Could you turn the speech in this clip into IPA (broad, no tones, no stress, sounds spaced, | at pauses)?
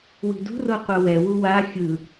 w i̤ d ṳ r o qʷ ɤ w ɛ w u w a xʲ ɯ